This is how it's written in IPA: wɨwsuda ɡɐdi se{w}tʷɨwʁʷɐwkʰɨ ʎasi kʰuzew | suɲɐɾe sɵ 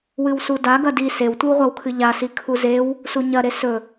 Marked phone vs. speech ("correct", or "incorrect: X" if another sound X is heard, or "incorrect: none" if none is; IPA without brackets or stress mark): correct